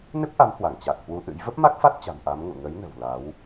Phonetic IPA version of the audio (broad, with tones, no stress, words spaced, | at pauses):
nɨ˦˥p̚ʔa˨˦mhwa˧˩ŋ t͡ɕa˨˩k̚hwu˨˦ʔɨ̰˧˥j və˦˥p̚ma˦˥k̚fa˦˥t̚t͡ɕa̤˨˩m ʔa˨˦mŋṵ˧˨ ŋə˨˦jnə̤˨˩w la˨˦w